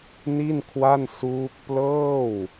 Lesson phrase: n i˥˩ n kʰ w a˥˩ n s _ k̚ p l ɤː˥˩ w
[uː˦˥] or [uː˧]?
uː˦˥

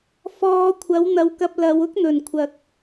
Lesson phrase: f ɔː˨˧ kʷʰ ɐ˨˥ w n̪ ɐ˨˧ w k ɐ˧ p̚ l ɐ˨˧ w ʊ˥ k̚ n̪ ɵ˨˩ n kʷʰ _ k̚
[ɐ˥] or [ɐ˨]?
ɐ˨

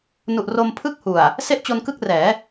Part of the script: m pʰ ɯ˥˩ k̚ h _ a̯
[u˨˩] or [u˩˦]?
u˨˩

